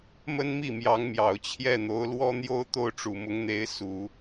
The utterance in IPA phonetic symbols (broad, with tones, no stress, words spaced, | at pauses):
mə˥nmi˥˩mjɑ˧˥ŋmjɑ˨˩ʊ̯ t͡ɕʰjɛ˥˩n̪o˧˥ʊ̯lwɔ˥n̪jo˥ʊ̯ t̪o˥˩ʊ̯ʈ͡ʂu˨˩mʊ˧˥ŋn̪e˧˥ɪ̯ su˨˩˦